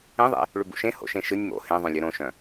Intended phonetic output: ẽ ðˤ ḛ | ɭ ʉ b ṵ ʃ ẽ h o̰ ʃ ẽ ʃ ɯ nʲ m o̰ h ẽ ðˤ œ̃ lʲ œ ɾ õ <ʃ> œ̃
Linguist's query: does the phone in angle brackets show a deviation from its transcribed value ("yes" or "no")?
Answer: no